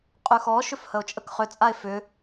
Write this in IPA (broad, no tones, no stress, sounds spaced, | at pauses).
qʼ ʉ x ɔ ʃ ʏ f h ə o̯ t͡ʃʼ ə k χ ʏ t͡sʼ a e̯ f ʏ